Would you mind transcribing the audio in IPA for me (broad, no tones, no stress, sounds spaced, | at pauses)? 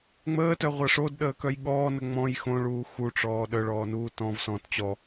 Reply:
ŋ͡m əː t œ ʁʷ ʌ ʂ o d ɗ əː k œ j ɠ ɔː n ə ŋ͡m ɔ̃ j x õ ɭ uː x u ʈ͡ʂ ɔː ɗ œ ɭ ɔː n uː t ɔ̃ v s ɔ̃ t t͡ɕ ɔ